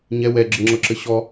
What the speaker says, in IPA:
ɲ ɛ w ɛ ɡ͡ǁ ɘ ŋ͡ǁ ɤ ǁ ɘ ɕ ɔ

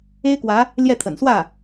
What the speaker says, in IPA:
e˥ ɪ̯ k w ä˧˥ | l j ɛ˥˩ t̪ʰ ə̰˨˩ n s w ä˥˩

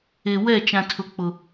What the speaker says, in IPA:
e˨ w ɛ˦˨ t͡ʃ ã˨ tʰ ʊ˨ k͡p ʊ˨

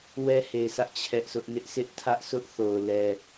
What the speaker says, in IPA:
w ɛ˦ h e˨ ɪ̯ sʰ ä˦ ʔ t͡ɕʰ ɛ˦ ʔ sʰ ʊ˦ ʔ n ɪ˦ ʔ sʰ ɪ˦ ʔ tʰ ä˦ ʔ sʰ ʊ˦ ʔ θ o˨ ʊ̯ l ɛ˨

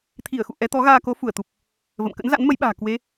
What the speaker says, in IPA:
t̪ʰ i˧˩ ə̯ x ṵ˧˨ ʔ ɛ˨˦ t̪ ɔ˨˦ ɣ aː˧ k o˨˦ f u˧˩ ə̯ t̪ u˨˩ p̚ | v ə̰˧˨ m k ə̰˧˥ n z a̰˧˥ n m ə˨˦ j ɓ a̤ː˨˩ k w e˨˦

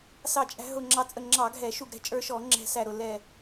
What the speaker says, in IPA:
s ɑ˧˩ t͡ʃʼ æ̤˧ ɦ ʊ˧˩ ŋ͡ǁ ɑ˧ t͡sʼ ə˧˩ ŋ͡ǁ ɑ˧˩˧ ɡʱ ɛ˧˩˧ ʃ u˧˩ ɡ ɾ ɛ̤˧ t͡ʃʼ ə˞˧ ʃ ɔ˧˩˧ ŋ͡ǁ ɛ̤˧˩ s æ˧˩ ɾ ʊ˧˩ l ɛ˧˩

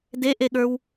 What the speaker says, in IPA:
d e ʔ e ɠ ə˞ w

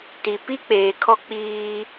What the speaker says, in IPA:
t i˨ p i˦ k͡p eː˨ kʰ ɔ˦ k͡p iː˦

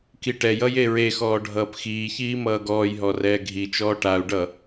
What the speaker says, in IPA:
k i ʈ ɛ j ʌ j e ɹ e x ɔː ɖʱ ʌː p x iː ç iː m ʌː ɡ ɔː j ɦ ɔ r ɛː ɡʱ i t͡ʃ ɔː ʈ a u̯ ɖ ʌ

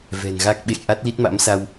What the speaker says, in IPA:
v ɛ̤˨˩ n ɣ a˦˥ k̚ ɓ ḛ˧˨ j ʔ a˦˥ t̚ l i˦˥ t̚ m a̰˧˥ m s a˧ w

